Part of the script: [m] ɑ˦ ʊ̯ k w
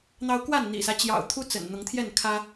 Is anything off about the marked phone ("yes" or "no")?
yes